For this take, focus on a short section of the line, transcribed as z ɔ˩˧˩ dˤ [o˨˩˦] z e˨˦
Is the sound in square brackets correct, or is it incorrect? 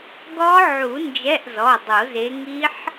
correct